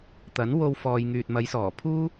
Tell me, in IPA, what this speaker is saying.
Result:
t̪ɐ˨˥n wo˧w fɔː˨jŋyː˨t̚ mɐ˨˧jsɔː˨˩ pʰuː˥

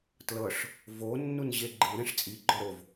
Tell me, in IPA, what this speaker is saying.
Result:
tlɤʂ | vo nːunʑeɡ͡ǃɯ ɾẽʂt͡sʼi ɡ͡ǃɔɾov

